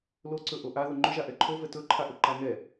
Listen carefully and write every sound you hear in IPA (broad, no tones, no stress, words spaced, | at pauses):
loǀɵ ʔoʔaðʊ ŋ͡ǃɵʒa ʔɛǃʰovɛ tɵǃʰaʔʊ ǃaŋɛ